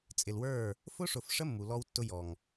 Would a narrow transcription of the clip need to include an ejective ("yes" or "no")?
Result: yes